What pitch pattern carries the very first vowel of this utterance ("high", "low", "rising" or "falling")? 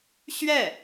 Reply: falling